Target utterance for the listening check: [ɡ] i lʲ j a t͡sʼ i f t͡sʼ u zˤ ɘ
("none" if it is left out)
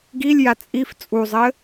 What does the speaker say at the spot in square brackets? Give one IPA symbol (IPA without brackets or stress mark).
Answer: ɡ